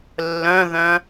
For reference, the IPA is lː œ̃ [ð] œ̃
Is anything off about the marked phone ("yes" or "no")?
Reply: no